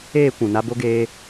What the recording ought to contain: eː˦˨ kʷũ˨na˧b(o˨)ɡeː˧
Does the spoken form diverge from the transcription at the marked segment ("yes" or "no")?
yes